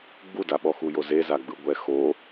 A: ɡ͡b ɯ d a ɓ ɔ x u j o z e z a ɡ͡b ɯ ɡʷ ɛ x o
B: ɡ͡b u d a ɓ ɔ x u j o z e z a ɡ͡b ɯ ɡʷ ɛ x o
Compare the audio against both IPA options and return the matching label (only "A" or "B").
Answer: B